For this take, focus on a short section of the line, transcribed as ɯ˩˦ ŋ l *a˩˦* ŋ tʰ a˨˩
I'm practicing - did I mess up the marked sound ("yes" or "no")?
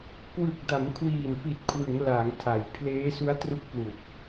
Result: no